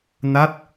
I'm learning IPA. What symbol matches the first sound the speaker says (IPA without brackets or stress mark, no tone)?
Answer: n